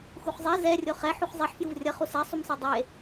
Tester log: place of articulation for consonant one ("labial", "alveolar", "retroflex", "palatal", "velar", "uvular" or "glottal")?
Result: velar